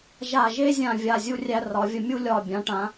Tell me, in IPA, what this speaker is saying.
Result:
ʒ a˧˩ ʒ e˥ zʲ ã˧˩ vʲ a˧˩ zʲ u˧ rʲ æ˧ r ɒ˩˧ vʲ ə˧˩ mʲ u˥ lʲ ɒ˧˩ bʲ ã˩˧ ʈ ã˩˧

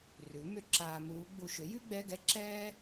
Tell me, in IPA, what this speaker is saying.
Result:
r ʉ˩˥ m ʏ˧˥˧ ǁ aː˧ m uː˧˥ ɡ͡b u˧ ʃ ʏ˩˥ j ʉ˥ ɡ͡b ɛ˧˥˧ ɡ ɛ˥ ǁ ɛː˥

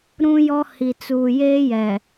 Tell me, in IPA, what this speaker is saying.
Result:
ɾ ũ˦ j ɔ˦ h i˨ t͡s uː˨ j eː˦ j ɛ˨

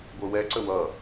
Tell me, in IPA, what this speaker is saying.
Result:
ɡʷ ə˞ w ɛ ǀ ə w ʌ

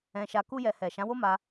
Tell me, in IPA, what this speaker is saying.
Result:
ɛ̃˧ ʃ a˧ k u˦ j ɛ˧ h ɛ˨ ʃ ã˨˦ w o˦ m a˧

